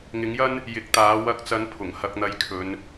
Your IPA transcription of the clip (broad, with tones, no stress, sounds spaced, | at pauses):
ŋ ɪ˨˥ ŋ j ɐ˥ n | j ɪ˨˥ k̚ t̪ aː˨˥ w ɐ˧ k̚ t͡s ɐ˨˥ n pʰ ʊ˨˩ ŋ h ɐ˥ k̚ n̪ ɐ˧ j kʰ ɵ˨˧ n